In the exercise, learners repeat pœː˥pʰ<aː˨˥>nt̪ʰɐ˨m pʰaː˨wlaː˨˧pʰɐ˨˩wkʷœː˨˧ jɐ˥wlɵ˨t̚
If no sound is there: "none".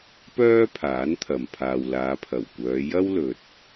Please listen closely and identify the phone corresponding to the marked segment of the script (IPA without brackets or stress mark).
aː˨˥